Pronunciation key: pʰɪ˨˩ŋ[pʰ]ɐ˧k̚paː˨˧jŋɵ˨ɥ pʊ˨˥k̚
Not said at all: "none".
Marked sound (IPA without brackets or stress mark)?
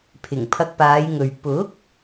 pʰ